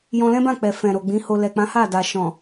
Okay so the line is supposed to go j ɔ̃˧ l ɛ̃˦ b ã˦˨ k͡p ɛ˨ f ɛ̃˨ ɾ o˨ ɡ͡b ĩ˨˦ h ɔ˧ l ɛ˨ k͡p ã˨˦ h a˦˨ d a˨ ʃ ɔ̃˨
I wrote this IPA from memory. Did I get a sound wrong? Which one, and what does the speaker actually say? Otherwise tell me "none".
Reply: ɔ˧ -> o˧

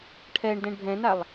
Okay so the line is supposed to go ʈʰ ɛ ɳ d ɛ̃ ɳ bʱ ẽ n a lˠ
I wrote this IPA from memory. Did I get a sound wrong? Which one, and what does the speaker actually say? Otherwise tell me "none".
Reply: ẽ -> ɛ̃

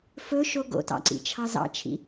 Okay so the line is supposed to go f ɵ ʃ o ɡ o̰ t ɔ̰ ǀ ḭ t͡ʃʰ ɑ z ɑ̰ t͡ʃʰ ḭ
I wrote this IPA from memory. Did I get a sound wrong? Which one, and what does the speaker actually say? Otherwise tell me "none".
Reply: ɔ̰ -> ɑ̰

